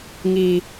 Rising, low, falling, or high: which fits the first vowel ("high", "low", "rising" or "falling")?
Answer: high